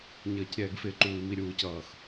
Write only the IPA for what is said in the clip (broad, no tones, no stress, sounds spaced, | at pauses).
ɲ ʌː c ɾʲ ɛː ɡ f ɪ ǃ uː i̯ m i ɾʲ uː c ʌː x